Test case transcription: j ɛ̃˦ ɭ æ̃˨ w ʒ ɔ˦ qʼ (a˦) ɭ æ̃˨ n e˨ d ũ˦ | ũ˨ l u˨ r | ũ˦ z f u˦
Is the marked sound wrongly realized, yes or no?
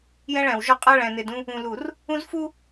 no